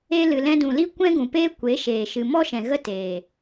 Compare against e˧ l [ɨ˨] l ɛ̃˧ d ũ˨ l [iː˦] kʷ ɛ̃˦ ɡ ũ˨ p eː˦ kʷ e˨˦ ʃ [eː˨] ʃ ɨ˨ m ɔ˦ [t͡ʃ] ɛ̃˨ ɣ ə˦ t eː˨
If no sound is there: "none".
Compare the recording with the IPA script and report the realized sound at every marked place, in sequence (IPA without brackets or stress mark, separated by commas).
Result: ɨ˨, i˦, eː˨, ʃ